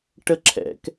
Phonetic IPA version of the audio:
ʈ ə ǁʰ ɛ̰ k

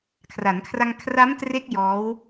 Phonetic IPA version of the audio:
kʰ r a˩˦ n kʰ r a˧ ŋ kʰ r a˦˥ m t r e˦˥ k̚ j ɔː˦˥ w

